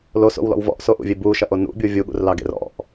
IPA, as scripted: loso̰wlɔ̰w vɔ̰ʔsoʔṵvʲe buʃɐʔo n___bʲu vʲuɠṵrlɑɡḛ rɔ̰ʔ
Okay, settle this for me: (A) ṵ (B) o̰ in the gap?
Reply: A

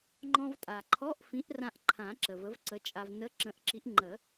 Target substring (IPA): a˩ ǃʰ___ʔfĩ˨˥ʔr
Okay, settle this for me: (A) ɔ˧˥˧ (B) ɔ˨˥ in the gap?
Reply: A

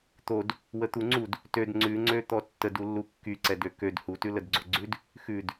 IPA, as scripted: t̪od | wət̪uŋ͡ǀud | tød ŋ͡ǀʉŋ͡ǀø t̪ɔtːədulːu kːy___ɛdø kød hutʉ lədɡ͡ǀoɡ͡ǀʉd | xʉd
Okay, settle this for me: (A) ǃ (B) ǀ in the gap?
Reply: B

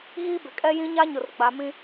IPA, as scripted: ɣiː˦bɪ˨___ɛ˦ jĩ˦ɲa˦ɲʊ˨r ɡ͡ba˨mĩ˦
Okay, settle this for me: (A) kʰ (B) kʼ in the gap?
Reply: B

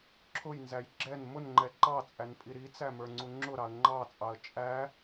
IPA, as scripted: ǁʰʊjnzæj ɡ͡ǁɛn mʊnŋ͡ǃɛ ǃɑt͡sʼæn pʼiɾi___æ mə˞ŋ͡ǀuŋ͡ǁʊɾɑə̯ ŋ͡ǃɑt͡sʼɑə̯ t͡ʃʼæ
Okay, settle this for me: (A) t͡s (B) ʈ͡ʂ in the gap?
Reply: A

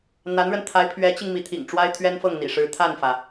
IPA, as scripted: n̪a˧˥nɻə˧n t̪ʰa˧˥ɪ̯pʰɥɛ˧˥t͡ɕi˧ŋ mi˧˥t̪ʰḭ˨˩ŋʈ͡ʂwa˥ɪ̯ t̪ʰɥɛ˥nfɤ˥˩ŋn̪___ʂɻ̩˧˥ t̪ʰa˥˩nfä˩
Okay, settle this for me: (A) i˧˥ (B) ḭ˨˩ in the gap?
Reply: B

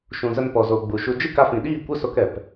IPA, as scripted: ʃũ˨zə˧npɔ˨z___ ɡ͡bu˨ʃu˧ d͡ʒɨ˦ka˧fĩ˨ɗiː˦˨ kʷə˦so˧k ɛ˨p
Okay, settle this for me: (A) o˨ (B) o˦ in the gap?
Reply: A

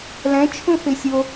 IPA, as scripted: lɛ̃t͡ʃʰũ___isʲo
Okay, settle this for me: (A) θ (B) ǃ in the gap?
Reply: A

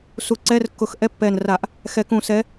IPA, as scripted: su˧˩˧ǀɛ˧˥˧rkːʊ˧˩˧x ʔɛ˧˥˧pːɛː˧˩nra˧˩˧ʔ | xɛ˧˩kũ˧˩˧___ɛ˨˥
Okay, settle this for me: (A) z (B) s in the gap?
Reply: B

